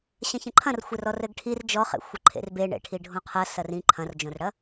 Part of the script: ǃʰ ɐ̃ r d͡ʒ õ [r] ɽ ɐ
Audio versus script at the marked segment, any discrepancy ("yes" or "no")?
no